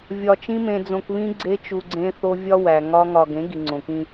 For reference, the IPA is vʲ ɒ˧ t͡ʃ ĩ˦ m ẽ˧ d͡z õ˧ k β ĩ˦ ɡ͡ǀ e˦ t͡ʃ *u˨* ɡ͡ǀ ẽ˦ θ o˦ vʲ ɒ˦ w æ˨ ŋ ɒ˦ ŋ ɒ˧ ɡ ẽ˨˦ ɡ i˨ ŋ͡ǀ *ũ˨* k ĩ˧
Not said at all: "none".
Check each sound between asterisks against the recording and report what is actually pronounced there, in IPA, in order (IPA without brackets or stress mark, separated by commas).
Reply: u˧, õ˨